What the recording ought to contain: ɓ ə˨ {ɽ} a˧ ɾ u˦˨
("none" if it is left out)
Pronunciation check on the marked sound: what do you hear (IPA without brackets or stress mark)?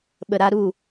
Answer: ɾ